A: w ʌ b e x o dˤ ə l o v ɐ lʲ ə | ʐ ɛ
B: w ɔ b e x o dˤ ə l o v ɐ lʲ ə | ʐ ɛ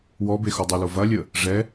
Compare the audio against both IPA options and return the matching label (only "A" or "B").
B